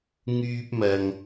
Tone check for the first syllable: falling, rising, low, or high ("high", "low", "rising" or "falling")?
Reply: high